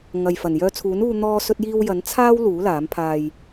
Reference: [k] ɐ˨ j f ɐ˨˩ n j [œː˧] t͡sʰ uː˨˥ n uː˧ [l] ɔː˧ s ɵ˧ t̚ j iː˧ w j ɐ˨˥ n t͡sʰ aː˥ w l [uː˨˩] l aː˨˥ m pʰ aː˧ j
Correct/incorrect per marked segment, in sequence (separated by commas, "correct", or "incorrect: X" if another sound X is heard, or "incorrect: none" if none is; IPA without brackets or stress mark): incorrect: ŋ, correct, incorrect: n̪, incorrect: uː˨˥